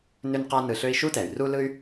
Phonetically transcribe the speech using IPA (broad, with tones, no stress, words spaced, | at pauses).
nʏ˥nqa˥ nɯ˧ɬø˥i̯ ʃu˥tɛ˩y̯ru˥ lɯ˥y̯